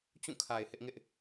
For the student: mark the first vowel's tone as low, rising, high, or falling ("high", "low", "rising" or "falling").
falling